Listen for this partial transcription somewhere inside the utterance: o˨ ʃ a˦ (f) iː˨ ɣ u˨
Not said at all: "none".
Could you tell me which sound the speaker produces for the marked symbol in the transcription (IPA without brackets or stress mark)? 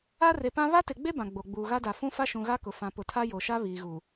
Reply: β